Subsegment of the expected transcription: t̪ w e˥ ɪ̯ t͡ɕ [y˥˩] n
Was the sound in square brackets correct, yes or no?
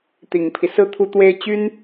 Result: no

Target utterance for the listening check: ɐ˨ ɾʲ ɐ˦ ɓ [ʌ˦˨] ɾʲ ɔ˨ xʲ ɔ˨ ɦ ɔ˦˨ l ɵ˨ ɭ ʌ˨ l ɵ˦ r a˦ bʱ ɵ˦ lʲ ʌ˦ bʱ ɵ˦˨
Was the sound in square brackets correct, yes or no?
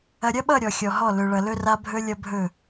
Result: yes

